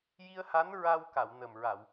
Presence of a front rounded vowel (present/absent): absent